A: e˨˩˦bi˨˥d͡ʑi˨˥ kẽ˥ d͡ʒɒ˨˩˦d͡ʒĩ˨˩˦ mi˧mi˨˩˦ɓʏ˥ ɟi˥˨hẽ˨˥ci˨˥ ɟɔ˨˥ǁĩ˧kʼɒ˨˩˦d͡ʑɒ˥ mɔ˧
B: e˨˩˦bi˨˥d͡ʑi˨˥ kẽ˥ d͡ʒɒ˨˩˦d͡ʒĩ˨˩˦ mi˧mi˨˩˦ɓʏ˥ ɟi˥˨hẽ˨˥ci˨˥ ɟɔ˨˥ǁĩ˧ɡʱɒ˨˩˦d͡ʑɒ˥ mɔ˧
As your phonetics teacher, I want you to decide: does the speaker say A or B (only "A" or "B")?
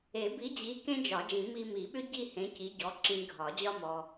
B